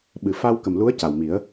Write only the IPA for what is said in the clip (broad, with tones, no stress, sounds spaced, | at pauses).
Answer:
ɓ ɨ˨˩ f a˧ w k ə˨˩ m l u˧˥ ə̯ c a˨˩ w m i˨˩˦ ə̯